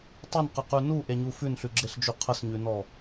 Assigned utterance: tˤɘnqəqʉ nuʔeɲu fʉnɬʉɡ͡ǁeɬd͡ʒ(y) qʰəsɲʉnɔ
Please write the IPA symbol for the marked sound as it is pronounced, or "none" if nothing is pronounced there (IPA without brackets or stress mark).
y